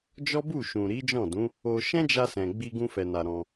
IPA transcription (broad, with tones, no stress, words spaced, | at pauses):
d͡ʒɔ˦bu˦˨ʃũ˨ ɾi˨˦d͡ʒɔ̃˦˨dũ˨˦ | o˧ ʃɛ̃˦d͡ʒa˧ sɛ̃˨ ɡ͡bi˧ɡũ˧fɛ˨na˨ ɾɔ̃˧